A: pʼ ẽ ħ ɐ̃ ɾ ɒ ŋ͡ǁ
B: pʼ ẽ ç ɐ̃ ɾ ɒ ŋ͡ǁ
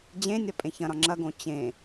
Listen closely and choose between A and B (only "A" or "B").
B